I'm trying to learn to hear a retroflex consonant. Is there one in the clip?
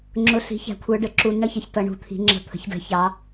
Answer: yes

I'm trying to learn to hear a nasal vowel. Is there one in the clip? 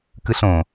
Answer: yes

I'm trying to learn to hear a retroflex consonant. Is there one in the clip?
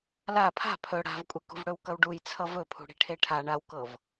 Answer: yes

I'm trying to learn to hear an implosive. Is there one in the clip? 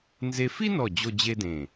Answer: no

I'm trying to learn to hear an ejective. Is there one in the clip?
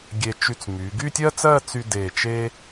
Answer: no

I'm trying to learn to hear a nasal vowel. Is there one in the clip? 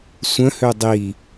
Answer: yes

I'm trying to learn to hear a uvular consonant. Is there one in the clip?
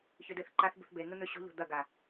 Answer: no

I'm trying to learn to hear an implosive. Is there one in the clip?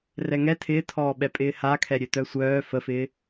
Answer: yes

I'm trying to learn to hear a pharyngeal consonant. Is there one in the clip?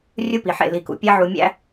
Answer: yes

